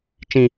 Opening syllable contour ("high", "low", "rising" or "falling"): low